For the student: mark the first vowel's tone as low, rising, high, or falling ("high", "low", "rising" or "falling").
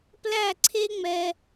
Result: falling